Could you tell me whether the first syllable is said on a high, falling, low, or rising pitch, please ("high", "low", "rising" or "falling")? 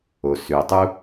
low